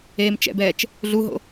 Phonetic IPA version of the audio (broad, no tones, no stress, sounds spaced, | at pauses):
eː m t͡ʃ ɛ̰ b ɛː t͡ʃ | ɮ u ɦ o̰